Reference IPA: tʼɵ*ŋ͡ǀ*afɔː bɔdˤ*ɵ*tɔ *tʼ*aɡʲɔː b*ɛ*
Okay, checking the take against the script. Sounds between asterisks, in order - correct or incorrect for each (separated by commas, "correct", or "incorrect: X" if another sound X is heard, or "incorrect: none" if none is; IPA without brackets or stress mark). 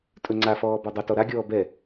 correct, correct, incorrect: ɾ, correct